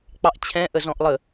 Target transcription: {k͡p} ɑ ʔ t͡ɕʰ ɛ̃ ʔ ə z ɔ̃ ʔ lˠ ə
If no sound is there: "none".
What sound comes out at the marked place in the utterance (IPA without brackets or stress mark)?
k͡p